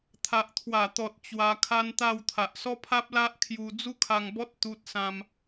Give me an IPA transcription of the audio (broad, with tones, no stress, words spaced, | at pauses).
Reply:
t̪ʰa˨ʔt̪ʰwa˨˩t̪ɔ˨t̚ t͡ɕwa˧kʰa˦nt̪a˥˧w t̪ʰa˨ʔsɔ˦pʰa˦p̚la˦ʔ kʰju˧ d͡zu˦kʰa˧ŋbɔ˦t̚ t̪u˦t̚sã˦m